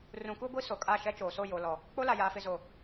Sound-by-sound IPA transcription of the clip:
r ũ˨ k u˦ ɡʷ i˦ s o˨ kʼ a˦˨ ʃ ɛ˦ t͡ʃ oː˨ s o˦˨ j o˨ l ɔ˨ | k͡p o˦ l a˨ j aː˨ f ɪ˨ z o˨

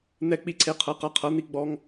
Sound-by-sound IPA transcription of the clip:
n̪ ɛ˦ k͡p i˦ ǀʰ e˦ qʰ ɤ˨˥ q a˨˥ qʰ ɤ˨˥ n̪ i˦ ɡ͡b ɔ˦ ŋ

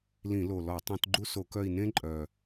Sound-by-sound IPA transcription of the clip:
l ĩ˧˩˧ l o˨˩ l ɔ˧˩˧ tˤ ũ˧˩˧ t ɡ͡ǃ u˥ s o˧˩˧ k œ˦˨ i̯ n ẽ˥ ǃʼ œ˨˩

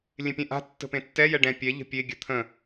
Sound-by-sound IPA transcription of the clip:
lʲ ẽ pʲ ɛ̃ ʔ a̤ tː ə̤ p ẽ tː ɛ j ɛ ɖ ɛ̃ pʲ ɛ ʎ ə̤ pʲ e ɡʲ ə t̪ʰ ə̃

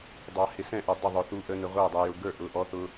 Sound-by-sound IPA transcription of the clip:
dˤ ɑ˨ h ɪ˨ s ɛ̃˥˩ ʔ ʌ˨ dˤ ɪ˥˩ ðˤ ʊ˨ θ u˨ ʔ ə˨ n ə˨ ʁʷ æ˥˩ dˤ ɛ˨ j ʊ˨ ɡ ə˞˥˩ ʔ ʊ˨ ʔ ɔ˨ θ ʊ˨

